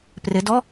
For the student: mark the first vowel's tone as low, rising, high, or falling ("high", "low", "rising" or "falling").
rising